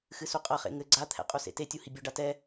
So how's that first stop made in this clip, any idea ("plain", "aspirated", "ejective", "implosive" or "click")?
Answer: ejective